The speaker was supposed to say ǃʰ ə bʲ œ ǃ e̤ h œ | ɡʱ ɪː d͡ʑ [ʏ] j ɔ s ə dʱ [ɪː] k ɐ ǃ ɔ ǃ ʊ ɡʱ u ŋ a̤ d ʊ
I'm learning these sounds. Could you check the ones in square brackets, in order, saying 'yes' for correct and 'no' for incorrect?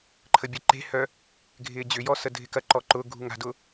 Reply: yes, no

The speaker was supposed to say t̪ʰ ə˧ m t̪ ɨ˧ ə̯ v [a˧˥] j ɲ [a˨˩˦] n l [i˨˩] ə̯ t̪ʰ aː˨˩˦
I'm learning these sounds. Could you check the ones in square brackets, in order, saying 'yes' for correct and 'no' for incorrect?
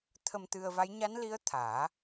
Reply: yes, no, no

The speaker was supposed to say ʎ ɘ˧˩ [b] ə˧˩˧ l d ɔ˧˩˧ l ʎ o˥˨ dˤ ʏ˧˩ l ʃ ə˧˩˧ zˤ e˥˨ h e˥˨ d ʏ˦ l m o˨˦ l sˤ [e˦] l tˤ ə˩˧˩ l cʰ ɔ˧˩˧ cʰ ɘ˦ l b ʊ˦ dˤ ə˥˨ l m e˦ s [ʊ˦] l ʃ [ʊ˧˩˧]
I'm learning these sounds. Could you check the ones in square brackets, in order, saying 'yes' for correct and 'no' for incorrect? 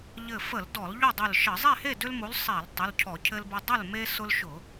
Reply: no, no, yes, yes

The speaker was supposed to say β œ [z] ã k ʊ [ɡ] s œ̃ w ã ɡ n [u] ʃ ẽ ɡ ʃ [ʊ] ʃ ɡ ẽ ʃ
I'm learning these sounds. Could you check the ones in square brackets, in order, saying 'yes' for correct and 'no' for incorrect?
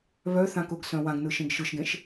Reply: no, yes, no, no

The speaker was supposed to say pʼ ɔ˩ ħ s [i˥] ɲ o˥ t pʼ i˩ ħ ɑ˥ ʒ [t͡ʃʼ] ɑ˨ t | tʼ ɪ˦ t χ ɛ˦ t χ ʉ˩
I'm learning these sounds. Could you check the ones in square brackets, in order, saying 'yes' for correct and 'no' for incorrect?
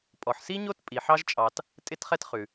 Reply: yes, yes

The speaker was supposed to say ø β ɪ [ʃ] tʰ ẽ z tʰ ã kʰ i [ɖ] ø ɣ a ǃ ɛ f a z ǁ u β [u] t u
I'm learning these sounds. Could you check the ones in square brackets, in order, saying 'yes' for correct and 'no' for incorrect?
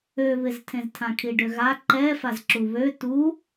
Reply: no, yes, no

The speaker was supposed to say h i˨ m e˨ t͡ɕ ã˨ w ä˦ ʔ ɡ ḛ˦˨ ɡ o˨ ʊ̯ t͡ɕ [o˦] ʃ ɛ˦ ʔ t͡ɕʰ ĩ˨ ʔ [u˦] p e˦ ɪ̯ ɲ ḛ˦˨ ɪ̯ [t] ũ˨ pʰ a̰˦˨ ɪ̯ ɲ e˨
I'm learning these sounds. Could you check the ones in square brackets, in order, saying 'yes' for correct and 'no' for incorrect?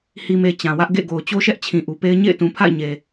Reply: yes, no, yes

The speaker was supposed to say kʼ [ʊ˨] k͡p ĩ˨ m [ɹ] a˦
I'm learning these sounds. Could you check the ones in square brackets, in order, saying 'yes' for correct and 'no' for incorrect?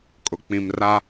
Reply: yes, no

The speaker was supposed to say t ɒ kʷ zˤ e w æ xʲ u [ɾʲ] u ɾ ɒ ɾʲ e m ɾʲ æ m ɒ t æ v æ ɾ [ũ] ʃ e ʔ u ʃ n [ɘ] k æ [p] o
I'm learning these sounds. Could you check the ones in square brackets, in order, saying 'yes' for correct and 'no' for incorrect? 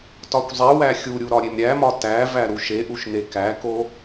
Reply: yes, no, no, no

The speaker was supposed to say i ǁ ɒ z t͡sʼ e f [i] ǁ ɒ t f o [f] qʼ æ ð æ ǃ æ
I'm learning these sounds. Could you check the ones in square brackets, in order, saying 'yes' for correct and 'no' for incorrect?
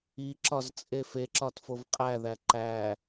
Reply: no, no

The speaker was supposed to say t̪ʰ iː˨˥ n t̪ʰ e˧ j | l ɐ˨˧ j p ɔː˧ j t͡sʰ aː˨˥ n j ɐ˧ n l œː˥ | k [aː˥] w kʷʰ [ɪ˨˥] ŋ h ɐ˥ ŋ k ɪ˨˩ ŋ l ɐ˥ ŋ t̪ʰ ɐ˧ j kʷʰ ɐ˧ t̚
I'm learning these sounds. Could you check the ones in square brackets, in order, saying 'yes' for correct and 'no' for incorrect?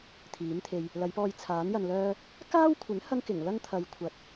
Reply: yes, yes

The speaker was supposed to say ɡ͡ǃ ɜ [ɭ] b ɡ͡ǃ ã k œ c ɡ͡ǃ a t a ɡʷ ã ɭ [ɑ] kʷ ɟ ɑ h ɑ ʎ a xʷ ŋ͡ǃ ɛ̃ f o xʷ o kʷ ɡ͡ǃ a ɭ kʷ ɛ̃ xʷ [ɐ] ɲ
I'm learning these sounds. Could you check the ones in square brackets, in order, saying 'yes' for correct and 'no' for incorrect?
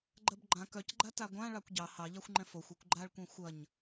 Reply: no, yes, yes

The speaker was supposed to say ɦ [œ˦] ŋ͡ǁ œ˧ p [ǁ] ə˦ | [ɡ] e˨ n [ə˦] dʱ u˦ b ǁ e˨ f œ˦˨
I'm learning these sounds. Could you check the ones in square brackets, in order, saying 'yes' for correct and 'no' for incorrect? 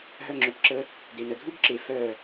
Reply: yes, yes, no, no

